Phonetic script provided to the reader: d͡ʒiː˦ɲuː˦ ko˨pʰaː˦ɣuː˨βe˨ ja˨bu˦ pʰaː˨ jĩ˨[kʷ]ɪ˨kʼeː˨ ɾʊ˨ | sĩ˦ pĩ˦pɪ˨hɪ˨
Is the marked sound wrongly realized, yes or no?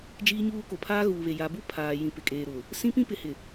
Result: yes